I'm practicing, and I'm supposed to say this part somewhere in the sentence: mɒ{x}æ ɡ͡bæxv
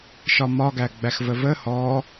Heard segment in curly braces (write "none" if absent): ɡ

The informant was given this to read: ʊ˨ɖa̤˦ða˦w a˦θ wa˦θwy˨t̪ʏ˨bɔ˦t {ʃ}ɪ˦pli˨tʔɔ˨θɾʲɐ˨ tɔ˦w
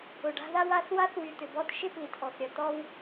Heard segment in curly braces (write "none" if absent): ʃ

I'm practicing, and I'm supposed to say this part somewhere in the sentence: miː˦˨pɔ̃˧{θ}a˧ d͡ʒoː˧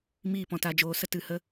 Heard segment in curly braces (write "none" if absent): t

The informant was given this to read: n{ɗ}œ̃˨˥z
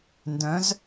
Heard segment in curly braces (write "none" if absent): d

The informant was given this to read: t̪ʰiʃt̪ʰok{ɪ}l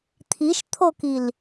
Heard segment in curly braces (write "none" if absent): i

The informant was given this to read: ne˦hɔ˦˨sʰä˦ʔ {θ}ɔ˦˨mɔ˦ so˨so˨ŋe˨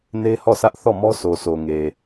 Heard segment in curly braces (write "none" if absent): θ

